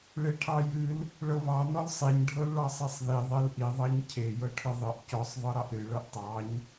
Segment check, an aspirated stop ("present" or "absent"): present